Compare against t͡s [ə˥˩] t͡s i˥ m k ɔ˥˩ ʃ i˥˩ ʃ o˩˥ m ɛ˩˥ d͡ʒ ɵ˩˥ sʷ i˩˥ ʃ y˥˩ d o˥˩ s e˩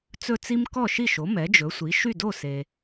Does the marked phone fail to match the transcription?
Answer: yes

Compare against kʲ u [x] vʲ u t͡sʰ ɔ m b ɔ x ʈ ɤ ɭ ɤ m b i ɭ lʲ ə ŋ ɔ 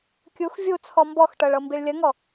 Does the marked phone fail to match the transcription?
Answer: no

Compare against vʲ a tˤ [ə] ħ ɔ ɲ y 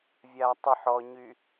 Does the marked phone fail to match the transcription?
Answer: no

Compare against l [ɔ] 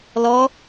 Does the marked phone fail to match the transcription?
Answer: no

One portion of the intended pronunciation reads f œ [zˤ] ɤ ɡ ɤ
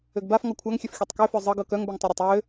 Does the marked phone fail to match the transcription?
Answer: no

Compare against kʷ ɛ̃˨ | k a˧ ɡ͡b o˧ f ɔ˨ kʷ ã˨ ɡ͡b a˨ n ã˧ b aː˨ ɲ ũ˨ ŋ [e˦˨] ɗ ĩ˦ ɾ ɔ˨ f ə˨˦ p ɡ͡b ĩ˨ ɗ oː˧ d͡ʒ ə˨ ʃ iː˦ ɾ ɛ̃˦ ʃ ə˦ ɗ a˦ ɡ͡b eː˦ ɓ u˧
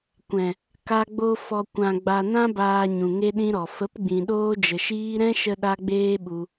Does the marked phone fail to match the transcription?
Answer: yes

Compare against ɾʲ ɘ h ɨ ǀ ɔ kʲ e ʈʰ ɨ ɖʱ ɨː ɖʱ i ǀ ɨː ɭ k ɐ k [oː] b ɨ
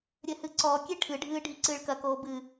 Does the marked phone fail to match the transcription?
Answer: no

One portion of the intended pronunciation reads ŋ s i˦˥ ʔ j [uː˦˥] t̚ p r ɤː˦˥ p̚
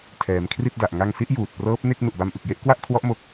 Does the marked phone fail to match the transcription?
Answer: yes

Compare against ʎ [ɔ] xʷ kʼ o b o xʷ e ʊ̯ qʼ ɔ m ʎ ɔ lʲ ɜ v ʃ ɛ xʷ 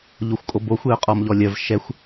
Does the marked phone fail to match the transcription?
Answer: yes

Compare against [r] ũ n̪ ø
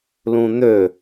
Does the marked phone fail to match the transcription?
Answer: yes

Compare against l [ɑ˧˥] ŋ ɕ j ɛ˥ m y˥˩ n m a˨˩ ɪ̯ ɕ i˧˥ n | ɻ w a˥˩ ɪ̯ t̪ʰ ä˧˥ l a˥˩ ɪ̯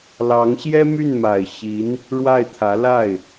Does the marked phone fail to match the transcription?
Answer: no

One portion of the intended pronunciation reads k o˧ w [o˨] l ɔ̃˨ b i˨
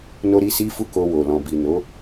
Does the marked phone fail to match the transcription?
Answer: no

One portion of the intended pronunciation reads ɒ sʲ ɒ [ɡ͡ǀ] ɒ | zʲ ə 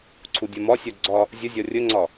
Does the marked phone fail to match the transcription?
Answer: no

